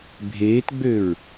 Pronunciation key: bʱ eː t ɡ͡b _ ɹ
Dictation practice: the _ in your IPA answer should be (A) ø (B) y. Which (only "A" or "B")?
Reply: A